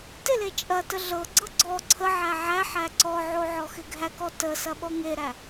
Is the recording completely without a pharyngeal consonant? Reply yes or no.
no